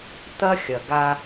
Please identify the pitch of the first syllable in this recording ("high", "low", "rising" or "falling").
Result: high